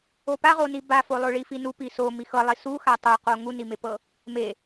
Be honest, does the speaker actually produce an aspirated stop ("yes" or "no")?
no